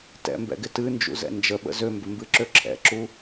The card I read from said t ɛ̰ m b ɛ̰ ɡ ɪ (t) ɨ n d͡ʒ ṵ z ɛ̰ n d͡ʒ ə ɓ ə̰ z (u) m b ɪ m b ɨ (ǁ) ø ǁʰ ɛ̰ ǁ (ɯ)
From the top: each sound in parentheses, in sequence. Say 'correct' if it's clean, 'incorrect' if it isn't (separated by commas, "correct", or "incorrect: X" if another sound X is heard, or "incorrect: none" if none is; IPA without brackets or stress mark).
correct, incorrect: ø, correct, incorrect: u